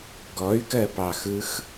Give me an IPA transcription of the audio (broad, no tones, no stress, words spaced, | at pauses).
ɡɔy̯kɜpɑxɯx